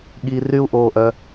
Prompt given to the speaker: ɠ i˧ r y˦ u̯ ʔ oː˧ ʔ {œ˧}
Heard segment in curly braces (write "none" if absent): œ˧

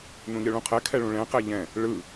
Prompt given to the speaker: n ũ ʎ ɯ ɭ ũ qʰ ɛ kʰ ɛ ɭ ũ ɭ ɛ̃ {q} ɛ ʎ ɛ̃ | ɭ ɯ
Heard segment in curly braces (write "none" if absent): q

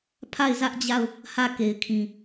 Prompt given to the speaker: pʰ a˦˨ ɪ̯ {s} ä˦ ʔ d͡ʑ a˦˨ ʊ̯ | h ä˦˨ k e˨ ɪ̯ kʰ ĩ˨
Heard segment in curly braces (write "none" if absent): z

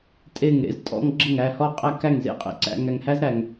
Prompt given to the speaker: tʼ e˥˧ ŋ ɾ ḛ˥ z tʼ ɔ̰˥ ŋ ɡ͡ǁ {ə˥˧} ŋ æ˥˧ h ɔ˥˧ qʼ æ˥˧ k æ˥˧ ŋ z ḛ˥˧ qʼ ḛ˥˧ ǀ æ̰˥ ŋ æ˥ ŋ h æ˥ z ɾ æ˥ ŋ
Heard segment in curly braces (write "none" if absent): ə˥˧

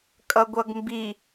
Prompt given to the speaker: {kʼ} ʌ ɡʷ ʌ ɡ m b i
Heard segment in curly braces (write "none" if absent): kʼ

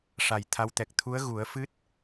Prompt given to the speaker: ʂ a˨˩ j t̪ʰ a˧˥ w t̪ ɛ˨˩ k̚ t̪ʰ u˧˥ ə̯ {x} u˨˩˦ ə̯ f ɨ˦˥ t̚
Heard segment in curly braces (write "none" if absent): ɣ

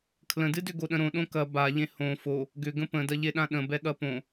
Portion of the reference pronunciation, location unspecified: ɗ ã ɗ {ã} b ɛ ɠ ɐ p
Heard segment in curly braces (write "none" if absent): ə̃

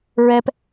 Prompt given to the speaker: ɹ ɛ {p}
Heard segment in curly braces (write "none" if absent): p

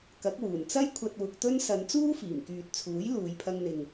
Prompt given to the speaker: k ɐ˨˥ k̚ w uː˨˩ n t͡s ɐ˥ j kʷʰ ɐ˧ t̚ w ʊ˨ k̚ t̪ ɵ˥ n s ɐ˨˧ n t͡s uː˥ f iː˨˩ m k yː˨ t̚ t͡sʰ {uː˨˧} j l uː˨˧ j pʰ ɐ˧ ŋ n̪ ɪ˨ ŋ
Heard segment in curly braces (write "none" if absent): uː˨˥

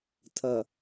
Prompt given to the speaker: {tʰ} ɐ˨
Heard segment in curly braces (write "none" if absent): tʰ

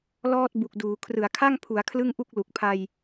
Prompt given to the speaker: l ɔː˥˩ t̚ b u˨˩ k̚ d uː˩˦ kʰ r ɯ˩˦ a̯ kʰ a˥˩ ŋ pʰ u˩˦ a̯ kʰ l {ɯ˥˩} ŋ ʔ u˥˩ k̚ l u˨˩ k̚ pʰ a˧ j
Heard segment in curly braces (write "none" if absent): ɯ˥˩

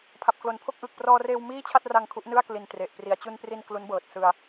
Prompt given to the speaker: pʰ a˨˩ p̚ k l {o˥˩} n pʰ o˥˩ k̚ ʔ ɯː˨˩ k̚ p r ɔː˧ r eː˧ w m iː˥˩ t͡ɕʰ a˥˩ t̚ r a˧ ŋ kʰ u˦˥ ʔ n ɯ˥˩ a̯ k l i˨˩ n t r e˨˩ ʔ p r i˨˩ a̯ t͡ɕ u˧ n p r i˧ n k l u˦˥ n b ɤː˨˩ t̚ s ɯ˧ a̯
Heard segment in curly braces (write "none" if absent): o˨˩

